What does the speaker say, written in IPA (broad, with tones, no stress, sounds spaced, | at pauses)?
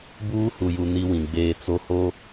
b uː˦ h u˨ j u˨ n i˦ w ĩ˨ ɡ͡b eː˦ t͡s o˦ h o˦